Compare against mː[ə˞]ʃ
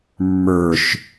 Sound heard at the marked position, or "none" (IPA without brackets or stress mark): ə˞